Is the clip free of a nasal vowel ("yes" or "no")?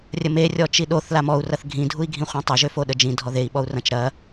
no